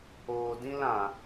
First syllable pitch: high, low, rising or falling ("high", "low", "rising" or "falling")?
low